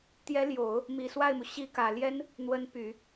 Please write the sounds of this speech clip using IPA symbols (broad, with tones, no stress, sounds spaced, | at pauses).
t̪ j ɛ˧˥ l j o˨˩˦ ʊ̯ | m i˨˩ s w a˥˩ ɪ̯ m u˩ ɕ i˧˥ k ä˨˩ l j ɛ˥ n | n̪ w ə˧˥ n p y˨˩˦